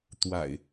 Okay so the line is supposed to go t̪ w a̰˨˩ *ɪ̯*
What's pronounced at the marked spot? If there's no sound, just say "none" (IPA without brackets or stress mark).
ɪ̯